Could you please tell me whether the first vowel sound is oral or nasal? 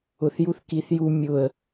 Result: oral